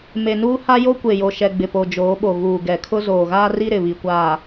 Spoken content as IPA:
m e˨ n uː˦ h a˦ j o˦ kʷ e˨ j o˨ ʃ ɛ˨ ɡ͡b ɪ˨ p o˨ d͡ʒ oː˨˦ ɓ o˨ ɣ uː˨ ɡ ɛ˨ kʰ ʊ˦ z oː˨ ɣ aː˦ r i˦ ɾ ɪ˨ β i˨ kʷ aː˨

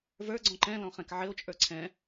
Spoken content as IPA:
v ə˞ ɡ͡ǀ ɔ̃ ǃ ɛ̃ l ɔ̃ χ ɛ̃ k ʕ ɘ o̯ t͡ʃʼ ə˞ ǀʰ ɛ̃

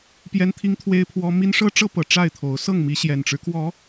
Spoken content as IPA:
p j ɛ˦ n t̪ʰ i˦ ŋ t̪ʰ w e˦ ɪ̯ pʰ w ɔ˦ m i˦ n ʂ ɤ˦ ʈ͡ʂ ɤ˦ p ɤ˨˩ ʈ͡ʂ a˥˨ ɪ̯ t̪ʰ o˨˦ ʊ̯ s ɤ˥˨ ŋ m i˨˦ ɕ j ɛ˨˩ n ʈ͡ʂ ɻ̩˦ k w ɔ˨˦

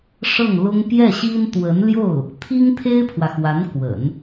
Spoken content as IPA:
ʂ ɤ˥˩ ŋ l ʊ˥ ŋ p j ɛ˥˩ ɕ i˥ n t̪ w ə˧˥ n l j o˥˩ ʊ̯ | t̪ʰ i˥ ŋ t̪ʰ e˥ ɪ̯ pʰ w ä˨ x w a˧˥ n k w ə̰˨˩˦ n

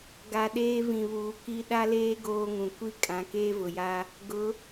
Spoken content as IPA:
ɡ a˨ ɗ eː˦ v ĩ˨ β uː˨ k i˦ ɗ a˦ l eː˦ ɡ oː˦ ŋ ũ˨ kʷ i˦ kʼ ã˨˦ k eː˦ v ʊ˨ j a˦ | ɡ ʊ˨˦

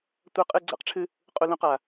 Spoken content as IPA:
tʷ ɐ˥ qʼ ɨ˥ ɡ͡ǀ a̰˥ q ʈ͡ʂʰ ɨ˥ | qʼ u˥ l ũ˥ q a˥

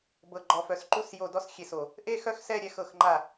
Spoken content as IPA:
b ɤ˨˩ ɡ͡ǃ ɔ˨˩ f œ˨˩ s ǃ u˦˨ s j o˦˨ d ɔ˦˨ s xʲ e˨˩ s o˨˩ | ʔ e˦˨ x œ˦˨ x s ɛ˦˨ ɾʲ ɛ˦˨ x ɤ˦˨ x ŋ͡ǃ a˦˨

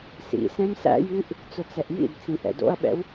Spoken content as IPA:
s ḭ s ɛ̃ m s æ̰ j ʉ ʔ | t͡s ʊ t͡s ɛ ʔ j ḭ d t͡s ĩ ʔ ɛ̰ d o̰ ɐ̯ ɓ ɛ̰ w

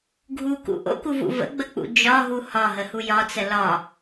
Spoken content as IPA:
ɡʱ u k ṵ ʔ o̰ k u v ṵ v ə̰ ɡ͡b ə k͡p ṵ d͡ʒ ɒ ɦ u h ɒ ɦ ə h u j ɒ t͡s ə l ɒ

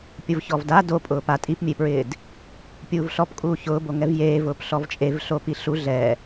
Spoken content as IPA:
pʲ ʊ v ç ɔ v d a d o pʼ ʊː p a tʼ i p mʲ e p ɹ ɪː d | pʲ uː v ɬ ɔ p kʼ uː ç ʊː b o ŋ ɛ v j eː v ʊː p ɬ ɔ v t͡ʃʼ e v ɬ o p i ɬ u ɮ ɛ

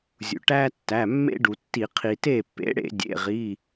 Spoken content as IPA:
zʲ ṵ˩ ʈ æ˦ tː æ˩˧˩ mː ḛ˦ ɖ u˩ tː i˧˩˧ qʰ i˩ t e˥˩ pː ḛ˩˥ ɽ ḛ˧˩˧ dʲ ḛ˩˧˩ ʁ i˩˧˩

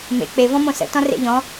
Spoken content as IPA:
m ḛ k͡p e v ɔ̃ m õ s ə̰ t ɔ̃ r ḛ ʎ ɔ̃

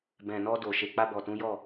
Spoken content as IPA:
b ɛ̃˨ n ɔ˧ d o˨ ʃ e˨ k͡p a˧ b ɔ˨ t ũ˨˦ j ɔ˦˨

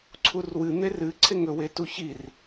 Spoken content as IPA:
ǀʰ u r w ɨ n̪ e r ɨ ǀʰ e ŋ ɵ w e t u ç i r

